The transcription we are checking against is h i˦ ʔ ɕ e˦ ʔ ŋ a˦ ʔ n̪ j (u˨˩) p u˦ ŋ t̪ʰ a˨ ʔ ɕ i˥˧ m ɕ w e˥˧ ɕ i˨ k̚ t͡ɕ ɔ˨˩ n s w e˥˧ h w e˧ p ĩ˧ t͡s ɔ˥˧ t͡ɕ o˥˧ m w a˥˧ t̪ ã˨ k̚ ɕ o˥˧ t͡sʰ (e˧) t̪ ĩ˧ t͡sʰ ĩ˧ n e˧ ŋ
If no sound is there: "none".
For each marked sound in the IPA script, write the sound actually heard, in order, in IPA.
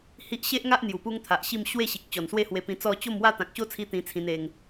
u˨˩, i˧

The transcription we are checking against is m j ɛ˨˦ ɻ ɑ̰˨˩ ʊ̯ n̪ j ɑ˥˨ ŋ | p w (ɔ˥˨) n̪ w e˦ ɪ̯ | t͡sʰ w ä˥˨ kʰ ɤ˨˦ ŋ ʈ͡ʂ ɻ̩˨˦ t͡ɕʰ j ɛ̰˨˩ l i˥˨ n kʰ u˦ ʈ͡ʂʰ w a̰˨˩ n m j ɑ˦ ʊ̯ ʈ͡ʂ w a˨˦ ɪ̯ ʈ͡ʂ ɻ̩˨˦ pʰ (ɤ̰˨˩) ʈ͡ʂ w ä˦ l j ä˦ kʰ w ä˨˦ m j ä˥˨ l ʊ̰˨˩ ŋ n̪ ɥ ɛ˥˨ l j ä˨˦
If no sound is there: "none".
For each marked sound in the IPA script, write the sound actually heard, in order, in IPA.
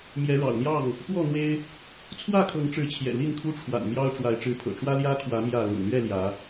ɔ˥˨, ɤ̰˨˩

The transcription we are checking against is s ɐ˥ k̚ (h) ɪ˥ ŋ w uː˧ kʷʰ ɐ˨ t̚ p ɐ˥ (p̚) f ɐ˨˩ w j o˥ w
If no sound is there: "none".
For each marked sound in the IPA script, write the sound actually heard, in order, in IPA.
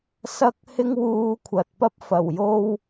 h, p̚

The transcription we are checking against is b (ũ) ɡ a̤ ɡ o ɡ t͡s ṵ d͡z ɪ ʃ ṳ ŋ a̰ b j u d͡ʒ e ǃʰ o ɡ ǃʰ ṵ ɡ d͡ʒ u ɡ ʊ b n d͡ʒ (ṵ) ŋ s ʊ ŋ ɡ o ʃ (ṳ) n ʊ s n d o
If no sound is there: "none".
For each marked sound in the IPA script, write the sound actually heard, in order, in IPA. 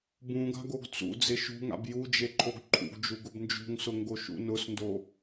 ũ, ṳ, ṵ

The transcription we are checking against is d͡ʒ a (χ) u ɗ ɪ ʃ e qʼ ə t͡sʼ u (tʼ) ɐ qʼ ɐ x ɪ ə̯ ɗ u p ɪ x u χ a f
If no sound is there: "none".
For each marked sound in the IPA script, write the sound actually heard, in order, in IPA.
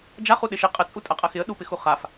χ, tʼ

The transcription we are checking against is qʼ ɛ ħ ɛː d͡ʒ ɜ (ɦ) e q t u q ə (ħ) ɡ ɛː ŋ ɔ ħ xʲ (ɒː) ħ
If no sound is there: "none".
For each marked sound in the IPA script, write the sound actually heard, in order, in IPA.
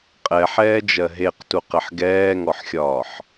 ɦ, ħ, ɒː

